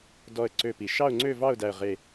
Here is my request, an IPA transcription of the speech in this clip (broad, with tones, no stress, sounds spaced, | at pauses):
d ɔ˥˧ ə̯ ǀ ø˥˧ p i˧˩˧ ʃ ɑ˥˧ ʊ̯ ŋ͡ǀ ø˥˧ v ɑ˥˧ ʊ̯ d æ˥˧ ə̯ ʁ e˥˧